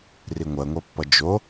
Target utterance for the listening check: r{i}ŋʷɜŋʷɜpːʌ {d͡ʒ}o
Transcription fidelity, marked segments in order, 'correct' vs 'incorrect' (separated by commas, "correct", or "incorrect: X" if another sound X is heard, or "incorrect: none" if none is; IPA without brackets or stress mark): correct, correct